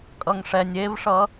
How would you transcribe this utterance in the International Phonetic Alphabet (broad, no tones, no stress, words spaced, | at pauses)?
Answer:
kʼʌŋʂɛnʲ evʂʌ